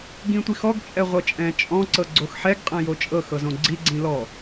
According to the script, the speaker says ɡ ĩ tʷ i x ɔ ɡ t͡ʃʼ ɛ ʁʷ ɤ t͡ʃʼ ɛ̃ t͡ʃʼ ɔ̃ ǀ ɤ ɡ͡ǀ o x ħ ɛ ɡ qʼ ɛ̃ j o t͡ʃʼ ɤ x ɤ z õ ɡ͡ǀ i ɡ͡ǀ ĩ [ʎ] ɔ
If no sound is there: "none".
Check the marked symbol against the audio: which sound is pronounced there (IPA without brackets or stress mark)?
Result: l